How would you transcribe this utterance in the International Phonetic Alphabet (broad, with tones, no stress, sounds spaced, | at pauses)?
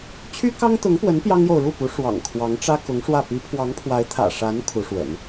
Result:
t͡ɕʰ y˥ k ɑ˥ ŋ t̪ ʊ˧˥ ŋ p w ə˧˥ n p j ɑ˥ ŋ j o˨ ʊ̯ ɻ u˥˩ p u˧˥ ʂ w ɑ̰˨˩ ŋ kʰ w ɑ˧˥ ŋ ʈ͡ʂ ä˥ k ʊ˧˥ ŋ ʂ w ä˥˩ p i˧˥ pʰ w ɑ˧˥ ŋ pʰ w a˧˥ ɪ̯ t̪ʰ ä̰˨˩ ʂ a˧˥ n kʰ u˧˥ ʂ w ə̰˨˩˦ n